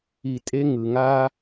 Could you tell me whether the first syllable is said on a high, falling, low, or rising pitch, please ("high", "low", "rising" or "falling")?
low